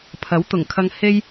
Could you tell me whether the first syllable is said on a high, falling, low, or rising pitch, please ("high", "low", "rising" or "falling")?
rising